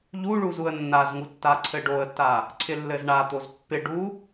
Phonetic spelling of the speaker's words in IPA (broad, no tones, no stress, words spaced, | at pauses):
ʎuɭuz uə̯nːazŋu tːaǀʰɘɖoə̯tːa | ǀʰɪlːɘzɳat̪oz pːɪɖu